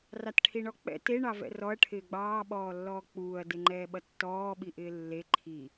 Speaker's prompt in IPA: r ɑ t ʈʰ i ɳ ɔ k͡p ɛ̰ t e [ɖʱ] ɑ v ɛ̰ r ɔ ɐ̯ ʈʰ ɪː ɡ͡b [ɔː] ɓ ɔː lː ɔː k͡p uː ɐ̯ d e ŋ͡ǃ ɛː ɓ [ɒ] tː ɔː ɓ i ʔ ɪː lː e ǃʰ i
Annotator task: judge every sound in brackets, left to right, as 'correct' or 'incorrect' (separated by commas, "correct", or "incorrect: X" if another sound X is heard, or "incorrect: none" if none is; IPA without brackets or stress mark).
incorrect: ɳ, incorrect: ɑː, incorrect: ʌ